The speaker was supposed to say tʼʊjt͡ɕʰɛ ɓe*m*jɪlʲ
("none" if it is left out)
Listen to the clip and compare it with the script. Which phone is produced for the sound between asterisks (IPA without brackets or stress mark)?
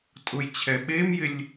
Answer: m